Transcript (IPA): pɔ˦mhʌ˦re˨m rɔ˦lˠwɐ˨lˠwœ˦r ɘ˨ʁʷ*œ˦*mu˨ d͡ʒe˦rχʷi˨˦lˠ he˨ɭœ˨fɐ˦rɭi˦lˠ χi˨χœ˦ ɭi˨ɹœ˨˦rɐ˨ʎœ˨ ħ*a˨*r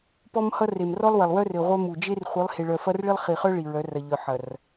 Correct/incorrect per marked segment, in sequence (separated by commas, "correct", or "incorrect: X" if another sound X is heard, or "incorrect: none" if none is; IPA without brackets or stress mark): correct, incorrect: ɐ˨